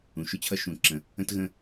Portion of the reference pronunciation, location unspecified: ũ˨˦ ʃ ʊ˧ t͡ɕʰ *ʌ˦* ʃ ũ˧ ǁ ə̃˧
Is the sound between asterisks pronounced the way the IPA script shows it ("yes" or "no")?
yes